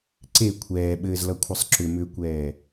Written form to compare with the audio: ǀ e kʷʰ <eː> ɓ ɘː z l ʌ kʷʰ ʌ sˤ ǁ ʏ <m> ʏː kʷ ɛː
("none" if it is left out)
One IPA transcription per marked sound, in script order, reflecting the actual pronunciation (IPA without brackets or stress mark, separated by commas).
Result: ɛː, m